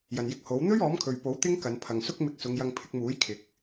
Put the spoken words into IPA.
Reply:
j ɐ˨ n j ɪ˧ k̚ h o˨˥ w n̪ ɵ˥ ɥ ɔː˨˥ m kʰ ɵ˨ ɥ p o˨˥ w t̪ ɪ˥ ŋ k ɐ˨˧ n pʰ ɐ˨ ŋ s ʊ˥ k̚ m ɪ˧ k̚ s ʊ˨˧ ŋ j ɐ˧ ŋ pʰ ɪ˧ k̚ m uː˨˥ j kʰ ɪ˨˥ k̚

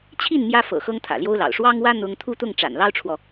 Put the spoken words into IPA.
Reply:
t͡ɕʰ i˥˩ n m j ä˥ f ɤ̰˨˩ x ɤ˥ ŋ t̪ʰ ä̰˨˩ l j o˥ ʊ̯ l ɑ̰˨˩ ʊ̯ ʂ w ɑ˥ ŋ w ä˥ n̪ ʊ˥ ŋ t̪ʰ u˥˧ t̪ ʊ˥˩ ŋ ʈ͡ʂ a̰˨˩ n l ɑ˥ ʊ̯ ʈ͡ʂʰ w ɔ˨

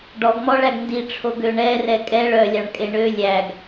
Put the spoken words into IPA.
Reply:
ɖ ɔ ɡ m ɔ ɭ æ ɡ n d i ʈ͡ʂʰ o ɡ ø ɳ ɛ r ɛ kʼ ɛ ɭ œ lʲ ɑ ɳ kʼ e ɳ ø lʲ æ ɡ

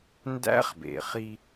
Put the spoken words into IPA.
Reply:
n d æ̰˦˥ χ b ḛ˩ χ i˧

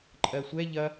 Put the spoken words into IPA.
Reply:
ǃʼ ɜ sʷ ɛ ʎ ɐ

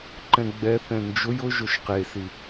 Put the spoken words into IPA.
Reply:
ǃ ɛ̃ ɡ͡b ɛ θ ɛ̃ n d͡ʒ ʊ j ʊ ʒ ʊ ʃ q e s i

